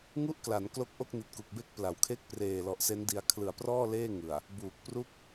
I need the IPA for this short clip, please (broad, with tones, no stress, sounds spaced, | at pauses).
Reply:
ŋ u˥˩ ʔ k l a˩˦ n k l o˦˥ k̚ ʔ o˥˩ k̚ n i˨˩ t̚ k u˨˩ k̚ b e˥˩ k̚ p l a˩˦ w kʰ e˥˩ k̚ p r eː˨˩ l ɔ˨˩ ʔ s e˦˥ n d i˧ a̯ kʰ l ɯ˨˩ a̯ p r ɔː˥˩ l eː˥˩ ŋ ɯ˨˩ a̯ | b uː˨˩ k̚ p r u˥˩ k̚